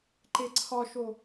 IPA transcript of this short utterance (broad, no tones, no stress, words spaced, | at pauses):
ǃeǀʰɒʃo